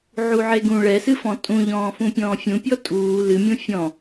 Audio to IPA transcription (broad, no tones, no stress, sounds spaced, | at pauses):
ʕ u ʕ e ɡ ũ ɭ ɛ s ɨ f ɔ̃ tʼ ũ ʎ ɔ̃ː f ũ pʲ ɔ̃ː fʲ ũ pʲ ɔ tʼ uː l ɨ mʲ ũ fʲ ɔ̃